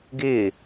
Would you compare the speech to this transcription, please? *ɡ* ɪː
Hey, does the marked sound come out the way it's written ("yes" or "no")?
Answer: yes